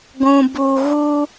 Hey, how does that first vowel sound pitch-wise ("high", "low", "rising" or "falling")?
low